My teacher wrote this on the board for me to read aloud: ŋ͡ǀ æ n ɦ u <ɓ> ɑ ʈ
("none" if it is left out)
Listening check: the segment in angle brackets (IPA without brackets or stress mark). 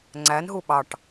ɓ